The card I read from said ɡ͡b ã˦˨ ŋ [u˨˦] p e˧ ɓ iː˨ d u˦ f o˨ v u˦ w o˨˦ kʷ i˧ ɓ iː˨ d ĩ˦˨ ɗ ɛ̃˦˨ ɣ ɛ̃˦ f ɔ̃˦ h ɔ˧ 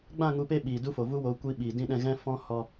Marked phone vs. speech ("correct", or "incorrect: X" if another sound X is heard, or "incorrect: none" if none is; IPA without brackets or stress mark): correct